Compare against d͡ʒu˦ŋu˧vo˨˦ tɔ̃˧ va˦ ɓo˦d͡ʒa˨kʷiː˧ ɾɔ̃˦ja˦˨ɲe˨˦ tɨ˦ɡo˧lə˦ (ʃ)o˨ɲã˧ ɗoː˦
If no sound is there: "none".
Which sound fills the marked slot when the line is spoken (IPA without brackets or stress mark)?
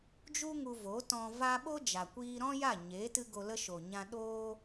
ʃ